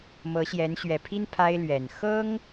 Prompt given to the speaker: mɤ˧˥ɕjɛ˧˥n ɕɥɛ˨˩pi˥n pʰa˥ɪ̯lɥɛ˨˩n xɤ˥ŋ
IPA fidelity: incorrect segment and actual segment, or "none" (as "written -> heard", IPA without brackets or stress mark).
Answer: p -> pʰ